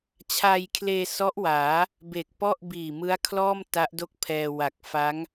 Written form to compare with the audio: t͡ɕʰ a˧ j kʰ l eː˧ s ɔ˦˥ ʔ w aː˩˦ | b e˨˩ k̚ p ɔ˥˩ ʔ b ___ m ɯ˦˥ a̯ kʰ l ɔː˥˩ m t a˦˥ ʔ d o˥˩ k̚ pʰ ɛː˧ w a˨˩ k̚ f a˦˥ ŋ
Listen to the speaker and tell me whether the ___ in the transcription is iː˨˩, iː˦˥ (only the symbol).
iː˨˩